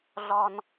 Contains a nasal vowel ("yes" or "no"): no